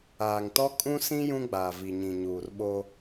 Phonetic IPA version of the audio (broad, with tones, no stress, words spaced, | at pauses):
aː˨ŋtɔ˦ kʼũ˦sĩ˦ jũ˦ɡ͡baː˨vi˨ ɲĩ˨ɲuː˨rɓo˦